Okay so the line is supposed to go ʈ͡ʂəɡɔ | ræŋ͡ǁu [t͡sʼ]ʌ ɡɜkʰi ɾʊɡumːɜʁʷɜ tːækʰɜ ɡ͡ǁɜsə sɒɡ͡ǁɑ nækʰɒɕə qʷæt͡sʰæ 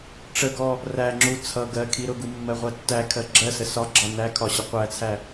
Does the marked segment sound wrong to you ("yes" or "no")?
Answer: yes